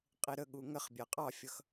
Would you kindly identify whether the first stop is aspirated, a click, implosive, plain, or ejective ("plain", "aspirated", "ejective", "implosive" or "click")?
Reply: ejective